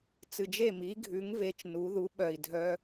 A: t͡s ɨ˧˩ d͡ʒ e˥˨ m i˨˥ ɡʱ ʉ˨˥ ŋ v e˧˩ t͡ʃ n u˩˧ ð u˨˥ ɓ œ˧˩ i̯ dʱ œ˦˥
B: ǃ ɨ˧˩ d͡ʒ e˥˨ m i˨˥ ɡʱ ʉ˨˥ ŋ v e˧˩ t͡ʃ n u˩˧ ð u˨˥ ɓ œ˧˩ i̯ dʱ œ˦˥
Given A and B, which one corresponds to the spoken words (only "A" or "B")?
A